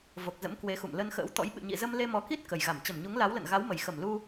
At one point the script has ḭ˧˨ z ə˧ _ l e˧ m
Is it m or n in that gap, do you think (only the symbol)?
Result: m